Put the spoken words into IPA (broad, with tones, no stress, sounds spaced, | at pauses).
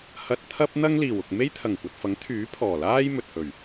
h ɐ˧ t̚ t̪ʰ ɐ˥ p̚ n̪ ɐ˥ ŋ l iː˨˩ w ʊ˨ k̚ m e˥ j t̪ʰ ɐ˨˩ ŋ kʷ ɐ˨ t̚ f ɐ˨˥ ŋ t̪ʰ yː˨˥ pʰ ɔː˨˩ l aː˥ j m ɵ˨ t̚ h ɵ˨˩ ɥ